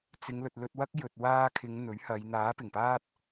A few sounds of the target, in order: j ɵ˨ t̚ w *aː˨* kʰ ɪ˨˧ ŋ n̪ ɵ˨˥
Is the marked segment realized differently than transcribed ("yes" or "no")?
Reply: yes